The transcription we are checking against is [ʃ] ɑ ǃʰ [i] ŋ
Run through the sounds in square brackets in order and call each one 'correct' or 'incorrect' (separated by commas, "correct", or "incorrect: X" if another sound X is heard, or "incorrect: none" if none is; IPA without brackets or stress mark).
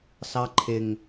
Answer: incorrect: s, incorrect: ɪ